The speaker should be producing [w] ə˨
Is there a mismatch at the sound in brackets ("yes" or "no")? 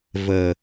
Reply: yes